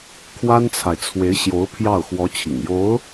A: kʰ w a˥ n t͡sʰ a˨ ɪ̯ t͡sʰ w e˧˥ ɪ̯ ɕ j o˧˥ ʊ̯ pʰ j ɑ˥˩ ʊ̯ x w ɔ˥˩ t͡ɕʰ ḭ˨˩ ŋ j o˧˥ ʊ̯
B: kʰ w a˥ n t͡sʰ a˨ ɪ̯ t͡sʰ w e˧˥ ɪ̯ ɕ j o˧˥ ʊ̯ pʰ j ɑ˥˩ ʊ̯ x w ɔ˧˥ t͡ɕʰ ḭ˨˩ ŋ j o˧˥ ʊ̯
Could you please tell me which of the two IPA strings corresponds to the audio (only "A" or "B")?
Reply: B